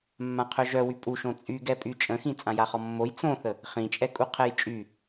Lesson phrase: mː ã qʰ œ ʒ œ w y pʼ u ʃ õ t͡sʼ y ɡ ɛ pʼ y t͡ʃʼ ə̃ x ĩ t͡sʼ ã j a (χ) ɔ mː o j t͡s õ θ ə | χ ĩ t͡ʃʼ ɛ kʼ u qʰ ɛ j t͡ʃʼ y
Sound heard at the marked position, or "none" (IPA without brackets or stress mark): χ